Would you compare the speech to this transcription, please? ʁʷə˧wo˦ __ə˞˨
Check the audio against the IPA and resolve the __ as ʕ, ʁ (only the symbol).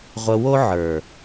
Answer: ʕ